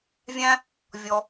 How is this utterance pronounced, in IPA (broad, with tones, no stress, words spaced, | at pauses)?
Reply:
vʲæ̃˧ | vʲɔ˩